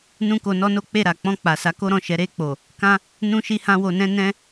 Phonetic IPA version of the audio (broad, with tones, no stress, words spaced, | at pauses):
nũ˦ko˧nɔ˦no˦ k͡pe˦˨ɾa˨ k͡pɔ̃˧k͡pa˨sa˨˦ ko˦ɾɔ̃˦˨ʃɛ˨˦ ɾe˦˨k͡po˨ | kã˦ | nũ˦ʃi˦hã˦ wo˧nɛ̃˦ nɛ̃˦